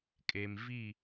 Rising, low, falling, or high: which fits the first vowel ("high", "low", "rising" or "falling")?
low